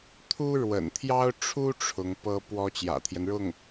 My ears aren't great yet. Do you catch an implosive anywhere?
no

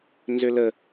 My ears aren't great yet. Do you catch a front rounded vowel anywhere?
yes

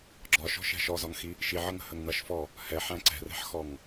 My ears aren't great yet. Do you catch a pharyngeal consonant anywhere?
yes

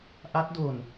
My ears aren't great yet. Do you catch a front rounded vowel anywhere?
no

